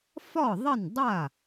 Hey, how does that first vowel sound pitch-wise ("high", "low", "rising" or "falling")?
falling